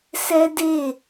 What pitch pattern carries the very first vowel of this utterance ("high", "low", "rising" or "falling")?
high